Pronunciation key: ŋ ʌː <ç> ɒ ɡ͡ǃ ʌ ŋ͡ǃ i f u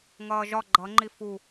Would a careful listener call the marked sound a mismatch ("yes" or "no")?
yes